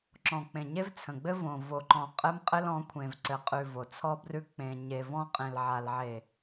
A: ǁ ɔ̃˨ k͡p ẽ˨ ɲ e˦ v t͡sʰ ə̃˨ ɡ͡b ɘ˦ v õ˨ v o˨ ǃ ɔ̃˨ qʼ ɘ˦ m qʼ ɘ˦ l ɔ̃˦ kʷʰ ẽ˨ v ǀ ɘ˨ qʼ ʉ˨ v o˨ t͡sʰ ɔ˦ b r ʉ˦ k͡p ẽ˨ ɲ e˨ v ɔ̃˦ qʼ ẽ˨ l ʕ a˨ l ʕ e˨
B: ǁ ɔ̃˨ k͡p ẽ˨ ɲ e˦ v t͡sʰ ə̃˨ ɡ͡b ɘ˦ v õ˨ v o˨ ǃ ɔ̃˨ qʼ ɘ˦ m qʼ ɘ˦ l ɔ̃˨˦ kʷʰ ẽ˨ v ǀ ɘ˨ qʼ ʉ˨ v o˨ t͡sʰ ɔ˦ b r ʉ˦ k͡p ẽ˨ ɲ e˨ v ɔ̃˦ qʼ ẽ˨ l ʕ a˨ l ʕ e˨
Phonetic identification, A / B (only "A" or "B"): B